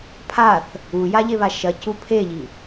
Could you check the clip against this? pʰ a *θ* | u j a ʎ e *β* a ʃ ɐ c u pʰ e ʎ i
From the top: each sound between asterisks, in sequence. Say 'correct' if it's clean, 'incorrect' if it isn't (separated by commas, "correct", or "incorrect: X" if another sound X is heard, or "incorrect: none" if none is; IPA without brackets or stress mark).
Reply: correct, correct